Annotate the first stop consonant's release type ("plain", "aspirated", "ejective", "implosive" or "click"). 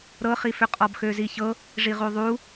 ejective